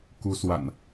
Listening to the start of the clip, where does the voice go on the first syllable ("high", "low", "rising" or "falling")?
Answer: rising